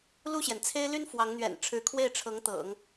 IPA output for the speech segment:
l u˥˩ ɕ j ɛ˩ n t͡sʰ e˥ ɪ̯ l y˥ n f w ɑ˧˥ ŋ n̪ ɥ ɛ̰˨˩ n ʈ͡ʂʰ ɻ̩˧˥ kʰ w e˥˩ ɪ̯ ʈ͡ʂʰ ɤ˧˥ ŋ t̪ ɤ̰˨˩˦ ŋ

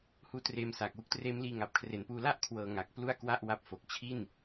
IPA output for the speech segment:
h uː˦˥ t r eː˧ m s aː˨˩ k̚ w u˦˥ k̚ t r eː˦˥ m l iː˧ ŋ a˨˩ p̚ kʰ r e˨˩ n p uː˧ l a˥˩ ʔ kʰ w ɤː˧ ŋ a˨˩ k̚ p l u˥˩ a̯ k w a˥˩ ʔ w a˦˥ p̚ f o˨˩ k̚ t͡ɕʰ i˥˩ n

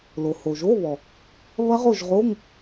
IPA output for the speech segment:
l o˩ h o˩ ʒ o˧˥˧ β ɔ˩ | β ɐ˦˥ ʁ o˦˨ ʒ ʁ o˧˥˧ ŋ

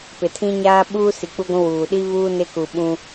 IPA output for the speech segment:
p ɪ˨ tʰ ĩ˦ ɲ aː˦ ɓ uː˦ s i˨ k͡p u˦ ɡʷ ũ˦ w uː˨ ɗ i˦ β uː˦ n ɪ˦ k u˨ ɓ ũ˦

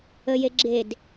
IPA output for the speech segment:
ə j e ɡ͡ǁ e d

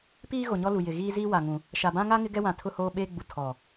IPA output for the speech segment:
p iː˦ ɣ o˨ ɲ ɔ˦ l u˨ j ɪ˨ ɣ iː˦ z iː˦ w a˨ ŋ ũ˨ | ʃ a˨ b ã˦ ŋ a˦ ŋ ɪ˦ ɡ ɛ˦ w ã˨ tʰ ʊ˦ h oː˦ ɓ eː˦ ɡ͡b u˨ tʰ ɔ˨

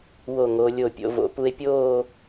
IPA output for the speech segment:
w o˧˩ ŋ o˩˧ lʲ o˧˩ pʲ o̰˩˧ v o̰˩˧ p u˧ e̯ pʲ oː˥˧

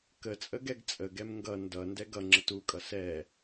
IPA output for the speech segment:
k ə t͡sʼ ə ɡ ɛ ɡ t͡sʼ ə ɡ ɛ m ŋ ɡ ʌ n d ʌ n d ɛ ɡ ʌ ŋ͡ǁ ə t u kʼ ʌ s ɛ

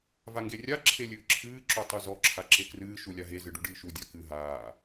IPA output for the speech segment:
v a ŋ ɡ e rʲ a ǁʰ e lʲ ɨː ǁʰ ɨː ǁ o tˤ u z ɔ ǁʰ a ǁ e k r ɨː ʃ u lʲ a ɦ e z ɨ ɖ u ɖ ɨː ʃ u dʲ a k ɨ ɦ aː

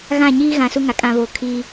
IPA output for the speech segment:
ɣ ã˦˨ ɲ iː˦ ɣ ã˨ s u˦ ŋ a˨ kʼ ã˦ β o˦˨ kʰ i˦

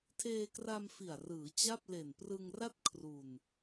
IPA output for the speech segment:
tʰ eː˧ k r a˧ m f i˨˩ a̯ r ɯː˩˦ t͡ɕ a˥˩ p̚ l e˨˩ n p r ɯ˧ ŋ r a˥˩ t̚ kʰ r u˧ n

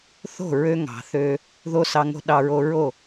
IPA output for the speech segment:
θ o̤˦˨ ɹ ø˧ ŋ ɑ̤˨ θ ø˧ | ð o˦ s ɑ˧ ŋ o̤˦ ɗ ɑ˧ ɹ o˧ ɹ o˦˨

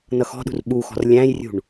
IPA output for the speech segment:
n ʌ x ɔ̤ ɗ ṳ r ɓ u x ɔ̤ r lʲ æ̃ j rʲ ṳ ɳ

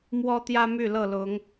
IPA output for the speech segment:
m w ɔ˦ t̪ j ä˦ m y˥˨ l ɤ˥˨ l ʊ˨˦ ŋ

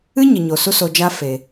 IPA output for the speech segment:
ɨ˦ ɲ ə˨ ɲ o˨ s u˦ s o˧ d͡ʒ a˦ f e˨

